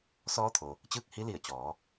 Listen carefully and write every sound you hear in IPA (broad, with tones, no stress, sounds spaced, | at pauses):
s ɔː˧˥ t̪ʰ o˩ | t͡ɕ ɯː˥˨ k̚ h i˧˥ l i˧˩ ə̯ t͡ɕ ɔː˩˧